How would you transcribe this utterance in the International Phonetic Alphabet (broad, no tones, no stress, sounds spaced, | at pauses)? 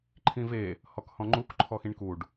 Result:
ǃʰ ĩ v e | h ɔ k h ɔ̃ ŋ͡ǃ u k ǃʰ ɔ x ĩ ɳ k u ɖ